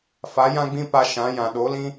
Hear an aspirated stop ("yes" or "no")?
no